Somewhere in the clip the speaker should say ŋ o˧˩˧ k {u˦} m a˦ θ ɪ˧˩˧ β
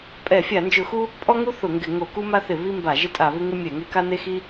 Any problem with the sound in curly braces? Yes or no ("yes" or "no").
no